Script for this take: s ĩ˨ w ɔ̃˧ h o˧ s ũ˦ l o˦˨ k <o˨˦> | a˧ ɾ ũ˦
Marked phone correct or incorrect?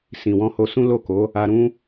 correct